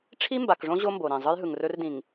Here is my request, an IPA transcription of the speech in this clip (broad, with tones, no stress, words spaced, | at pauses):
ʈ͡ʂʰi˦mba˨kʐõ˦ ʑo˦mbo˨ɾĩ˨ zˤɯ˦jɦɯ˨ŋrɵ˦rdĩ˨ŋ